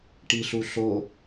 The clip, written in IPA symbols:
ʈ i ɬ u ɬ o

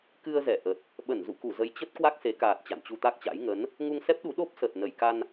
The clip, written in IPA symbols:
k ɨ˧ ə̯ z ɛ˧˩ ʔ ə˨˩ t̚ | ɓ ə˧˩ n z ṵ˧˨ k u˧˩ z ə˨˦ j t͡ɕ ə˦˥ t̚ k w a˦˥ k̚ s e˨˦ k aː˨˩ t̚ t͡ɕ a̰˧˨ n t͡ɕ u˧ t̪ a˦˥ k̚ t͡ɕ a̰˧˥ j ŋ ə˨˦ n | ŋ u˧ ŋ s ɛ˦˥ p̚ ɗ u˨˦ ɗ o˦˥ p̚ s ə˨˩ t̚ n ə˧˩ j k a˧ n

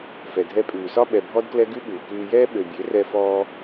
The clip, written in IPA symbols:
f ɛ˨ dʱ ɛ˧ pʼ ʉː˨ s ɒ˦ ɓ ɛ˧ bʱ ɔ˦ d k l ɛ˦ ɡ ʉ˦ ɓ uː˨ k ʉː˧ j ɛː˦ ɓ ø˨ bʲ ø˨˦ r ɛ˧ f ɔː˧

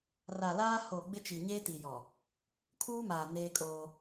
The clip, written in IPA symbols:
r a˨ l aː˦ h o˨ ɡ͡b ɪ˦ t͡ʃ i˨ ɲ eː˦ t i˨ j ɔ˨ | kʰ uː˦ m aː˨ n eː˦ kʼ oː˦

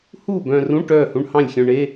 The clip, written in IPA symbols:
h uː˥˨ b œ̃ː˧ r ũ˧˥˧ ʈ œː˥˨ h ũ˧˥˧ ɳ h ɑ̃˥˨ lʲ xʲ œ̃˧ ɳ e˧˥˧

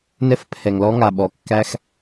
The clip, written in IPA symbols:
n ɛ˥ f pʰ ɛ˩ ŋ l ɔ˥ ŋ a˩ ɓ ɔ˩ kː æ˥ x

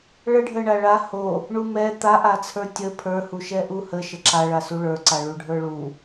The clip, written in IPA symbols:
ɭ ə ɖʱ ə ɳ a ɭ a h o | ɳ u m ɛ t̪ a ʔ a t͡sʰ ə˞ tʲ ə pʰ ə˞ h u ʃ ɛ ʔ u h ə ʃ ə ǁ a ɭ a s u ɭ ə˞ ǀ a ɭ u ɖʱ ə˞ ɭ u

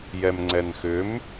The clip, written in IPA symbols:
j ɛ m ŋ͡ǀ ɛ n x ʏ m

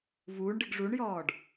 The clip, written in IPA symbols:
v uː ɳ ɖ ɨ ɡ ʐ u ɳ j ɔː ɖ

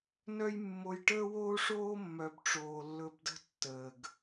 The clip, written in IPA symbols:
n œ˦ j mː o˧ j ʈ əː˦ w oː˦ ʂ oː˦ mː œ˨ b ʈ͡ʂ oː˨ lː ɵ˧ b d ə̤˦ tː əː˨ ɡ

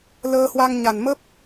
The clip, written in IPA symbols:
l əː˧ h w a˧ ŋ ɲ a˨˩ n m ə˦˥ p̚

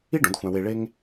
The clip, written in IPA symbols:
i˥ ɖ õ˩˥ d xʷ æ̃˧ w e˧ ɭ e˥ ŋ

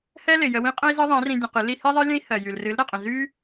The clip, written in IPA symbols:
h ɛ˦ l ɪ˨ j ə˧ w ĩ˦ qʼ ə̃˦ i̯ z ɨ˦ ðˤ ɛ̃˨˦ r ĩ˧ dʲ ə̃˧ q ɨ˨˦ l i˦ h i˦ ðˤ ɜ˦ lʲ ə̃˦ i̯ h ɜ˨ j y˨ l r ɨ˨˦ l ɾ ɜ˨ qʼ ə̃˨ z y˦

